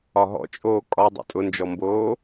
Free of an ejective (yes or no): no